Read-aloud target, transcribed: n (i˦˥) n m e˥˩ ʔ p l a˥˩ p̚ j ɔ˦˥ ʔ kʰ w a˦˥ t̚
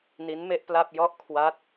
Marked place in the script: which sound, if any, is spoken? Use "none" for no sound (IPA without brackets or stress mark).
i˦˥